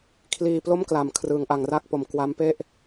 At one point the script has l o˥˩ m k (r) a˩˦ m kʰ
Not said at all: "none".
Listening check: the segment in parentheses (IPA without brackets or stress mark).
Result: l